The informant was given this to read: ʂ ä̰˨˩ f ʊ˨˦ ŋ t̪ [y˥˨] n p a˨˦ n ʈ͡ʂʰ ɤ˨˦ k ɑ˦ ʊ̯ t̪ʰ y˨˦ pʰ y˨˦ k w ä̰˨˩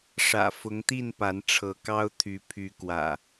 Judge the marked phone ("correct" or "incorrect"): incorrect